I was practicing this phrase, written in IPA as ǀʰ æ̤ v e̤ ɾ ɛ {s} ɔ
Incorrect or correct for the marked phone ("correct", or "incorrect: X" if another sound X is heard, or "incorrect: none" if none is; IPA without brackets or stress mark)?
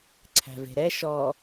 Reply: incorrect: ʃ